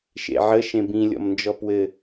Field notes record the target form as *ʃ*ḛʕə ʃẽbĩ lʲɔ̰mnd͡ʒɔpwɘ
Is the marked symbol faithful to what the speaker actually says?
yes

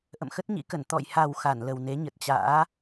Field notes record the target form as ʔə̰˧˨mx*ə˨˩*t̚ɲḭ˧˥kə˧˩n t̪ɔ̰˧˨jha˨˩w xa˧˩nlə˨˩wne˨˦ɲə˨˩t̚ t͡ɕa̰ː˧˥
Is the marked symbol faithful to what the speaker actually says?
no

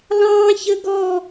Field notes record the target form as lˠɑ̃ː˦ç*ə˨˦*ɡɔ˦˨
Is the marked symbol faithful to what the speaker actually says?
no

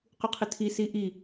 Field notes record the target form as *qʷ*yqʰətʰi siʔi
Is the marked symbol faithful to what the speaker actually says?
no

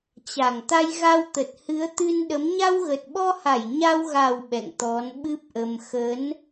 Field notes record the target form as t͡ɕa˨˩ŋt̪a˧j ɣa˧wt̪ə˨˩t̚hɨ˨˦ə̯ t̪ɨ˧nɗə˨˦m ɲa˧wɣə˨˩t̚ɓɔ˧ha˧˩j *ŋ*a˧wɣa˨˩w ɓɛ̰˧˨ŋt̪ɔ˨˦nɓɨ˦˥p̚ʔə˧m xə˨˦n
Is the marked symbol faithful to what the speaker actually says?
no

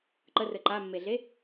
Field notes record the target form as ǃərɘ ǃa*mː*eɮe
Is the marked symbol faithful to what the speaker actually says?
yes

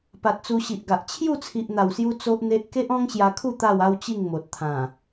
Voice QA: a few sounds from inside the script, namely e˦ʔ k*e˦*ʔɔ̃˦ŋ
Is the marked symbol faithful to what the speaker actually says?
yes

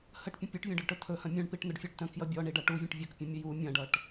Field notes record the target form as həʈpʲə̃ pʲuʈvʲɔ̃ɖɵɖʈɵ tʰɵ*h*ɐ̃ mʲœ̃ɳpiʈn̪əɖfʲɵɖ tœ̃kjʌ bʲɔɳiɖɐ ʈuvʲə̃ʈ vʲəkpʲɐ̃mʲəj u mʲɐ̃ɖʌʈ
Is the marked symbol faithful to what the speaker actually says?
yes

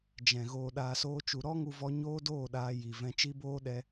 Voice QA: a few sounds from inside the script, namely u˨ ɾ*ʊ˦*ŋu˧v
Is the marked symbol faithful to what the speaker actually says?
no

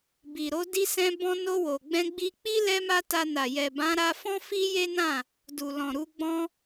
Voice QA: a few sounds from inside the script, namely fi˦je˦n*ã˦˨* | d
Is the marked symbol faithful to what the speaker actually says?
yes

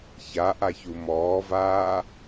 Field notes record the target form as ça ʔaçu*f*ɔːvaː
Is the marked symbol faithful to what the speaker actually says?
no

